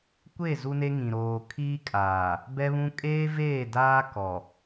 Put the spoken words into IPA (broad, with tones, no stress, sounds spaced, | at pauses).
kʷ e˦˨ z u˦ n e˦ ŋ ĩ˨ ɾ oː˨ kʰ iː˦ kʼ aː˨ | b ɛ˦ β ũ˦ kʼ eː˦ v eː˦˨ d aː˦ k ɔ˨